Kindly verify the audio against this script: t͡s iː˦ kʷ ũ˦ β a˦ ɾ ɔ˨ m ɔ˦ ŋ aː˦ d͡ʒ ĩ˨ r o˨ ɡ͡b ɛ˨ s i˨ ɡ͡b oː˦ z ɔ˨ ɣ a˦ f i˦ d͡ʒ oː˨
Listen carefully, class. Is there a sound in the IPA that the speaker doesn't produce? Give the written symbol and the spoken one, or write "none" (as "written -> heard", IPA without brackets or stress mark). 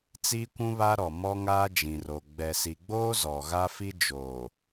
none